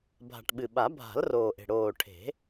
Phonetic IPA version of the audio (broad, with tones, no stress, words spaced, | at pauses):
bʱa̤˨˩ʈɓɨ˨˩ɓa˨˩˦ bʱa̤˨˩˦l roː˨˩ʔe̤˨˩ ɽoː˨˩ʈʰe̤˨˩˦